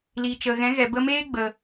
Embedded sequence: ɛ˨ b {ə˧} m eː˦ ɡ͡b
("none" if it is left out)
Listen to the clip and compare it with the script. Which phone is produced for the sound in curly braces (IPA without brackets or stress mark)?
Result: ə˧